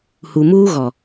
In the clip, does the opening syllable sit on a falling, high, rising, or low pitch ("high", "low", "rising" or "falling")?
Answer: low